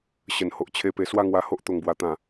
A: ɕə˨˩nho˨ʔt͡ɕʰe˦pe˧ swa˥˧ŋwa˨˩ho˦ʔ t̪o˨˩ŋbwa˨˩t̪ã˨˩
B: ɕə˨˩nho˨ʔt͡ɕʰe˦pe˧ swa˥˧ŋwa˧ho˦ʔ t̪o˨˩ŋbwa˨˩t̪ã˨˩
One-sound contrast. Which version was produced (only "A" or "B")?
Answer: B